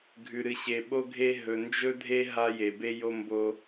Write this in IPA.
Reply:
ɡʱ ʉ˨ ɾ ɨ˨ ɕ e˨ ɓ o˦ ɡʱ e˦ ɦ ɵ˨ n d͡ʒ ɵ˦ dʱ e˦ ɦ a˦ j e˨ b e˦ j o˦ m b o˦

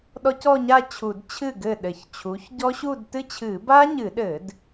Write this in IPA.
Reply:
ɗ ɔ˦˥ c ɔ˥˧ ɲ a˥˧ t͡ɕʰ u˧˩˧ d t͡ɕʰ ɨ˥˩ ɡ ɘ˥˩ ɗ ɘ˧˩˧ ç t͡ɕʰ u˩˥ ç ɟ ɔ˦˥ ɕ u˥˧ d t ɨ˥˧ t͡ɕʰ ɨ˧˩˧ b a˦˥ ɲ ɨ˧˩˧ ɗ ɘ˧˩˧ d

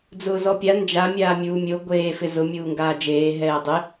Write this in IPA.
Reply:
d͡z ʊː z ɔ pʲ a n d͡ʒ a mʲ aː mʲ uː mʲ o ɡʷ eː f ɪ z ʊ mʲ uː ŋ ɡ aː d͡ʒ eː ɦ ɛː dˤ ɪ

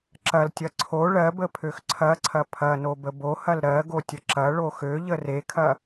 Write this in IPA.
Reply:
ǁ ɐ l tʲ ɐ ǀʰ o ɭ ɜ b ə pʰ ø x ǀʰ ɐ ǀʰ ɐ pʰ ɐ n o b ə b o h ɐ l ɾ ɜ ɡ o tʲ ə ǁ ɐ ɭ o x ø ʎ ə r e kʰ ɐ

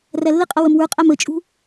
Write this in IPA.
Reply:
r æ lː ɪ qʼ ʌ w ə m w ə˞ qʼ æ m ə t͡ʃʼ ṳ

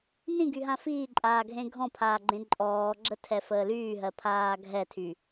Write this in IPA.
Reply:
n ĩ ɡ y ɦ ã f iː ǃʼ aː ɡʱ ẽ ɡʱ ɔ̃ pʰ aː ɡ͡ǃ ẽ ǃʼ ɔː ɡ͡ǁ ə tʰ ɛ f əː l yː ɦ ɜ pʰ aː ɡʱ ɛ tʰ y

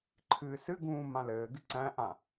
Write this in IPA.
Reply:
ǃʰ ɨː s ɨ ɡ ũː m ã l ɘː ɡ ɨ ǀ æ̃ ʔ ã

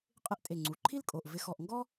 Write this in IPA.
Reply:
qʼ ɪ˥ ʔ tʼ e˧˩ ŋ͡ǀ u˩˧˩ ǃʰ i˥ l kʼ o˩˧˩ ʔ v ɪ˧˩ x ɔ˧˩ ʔ ŋ ɡ ɔ˥

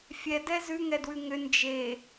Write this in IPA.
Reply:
fʲ ɛ d ɛ z ʉ ŋ ɛ d w ʉ ŋ ʏ n d͡ʒ e

